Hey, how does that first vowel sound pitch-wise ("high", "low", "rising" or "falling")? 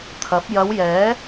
rising